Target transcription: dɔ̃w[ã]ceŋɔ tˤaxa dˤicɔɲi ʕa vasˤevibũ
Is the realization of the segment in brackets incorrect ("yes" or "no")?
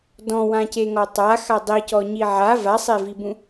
no